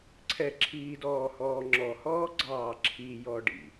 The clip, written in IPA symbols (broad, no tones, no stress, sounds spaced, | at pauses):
ǀʰ ɛ ǁʰ iː d ɔː h ɔː ŋ͡ǁ ɔ h ɔː ɡ͡ǀ ɑː ǁʰ i j ɔ ɖ ḭ